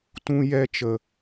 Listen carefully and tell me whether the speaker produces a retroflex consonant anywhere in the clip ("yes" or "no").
no